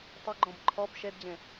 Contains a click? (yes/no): yes